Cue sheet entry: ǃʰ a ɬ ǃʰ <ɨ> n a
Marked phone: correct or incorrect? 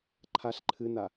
correct